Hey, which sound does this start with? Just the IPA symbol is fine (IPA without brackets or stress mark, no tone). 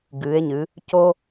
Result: ɡ